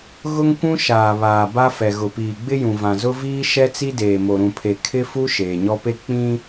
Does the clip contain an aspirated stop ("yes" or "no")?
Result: yes